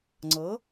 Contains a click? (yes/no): yes